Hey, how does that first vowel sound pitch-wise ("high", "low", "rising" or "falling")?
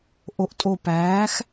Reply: rising